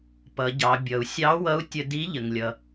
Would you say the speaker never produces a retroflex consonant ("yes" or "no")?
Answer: yes